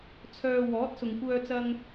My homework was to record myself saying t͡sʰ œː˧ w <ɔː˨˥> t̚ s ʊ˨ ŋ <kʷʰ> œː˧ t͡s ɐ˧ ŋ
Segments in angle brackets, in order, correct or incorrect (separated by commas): correct, incorrect